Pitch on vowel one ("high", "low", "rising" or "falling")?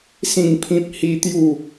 falling